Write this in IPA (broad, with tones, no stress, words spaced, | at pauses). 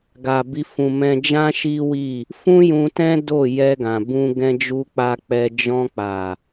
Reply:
ɡa˨bi˧ fũ˨ mɛ̃˧d͡ʒã˦ ʃi˦wi˦˨ | fũ˦jũ˧tɛ̃˦ do˦˨ jɛ˧ɡã˨bũ˧ ɡɛ̃˦d͡ʒu˦k͡pa˦ k͡pɛ˧ d͡ʒɔ̃˧k͡pa˨